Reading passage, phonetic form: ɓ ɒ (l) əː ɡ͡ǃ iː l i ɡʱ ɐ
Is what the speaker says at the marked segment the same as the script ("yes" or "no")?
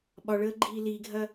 no